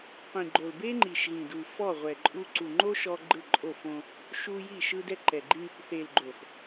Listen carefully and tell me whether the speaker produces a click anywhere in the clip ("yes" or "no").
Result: yes